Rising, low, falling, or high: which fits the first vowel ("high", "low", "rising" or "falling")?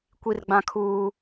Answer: high